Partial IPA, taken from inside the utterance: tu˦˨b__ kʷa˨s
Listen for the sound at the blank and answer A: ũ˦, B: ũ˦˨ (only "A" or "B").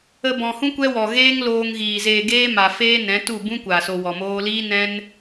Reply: A